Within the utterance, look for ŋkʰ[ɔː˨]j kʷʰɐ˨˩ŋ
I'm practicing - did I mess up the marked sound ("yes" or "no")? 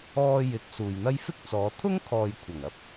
no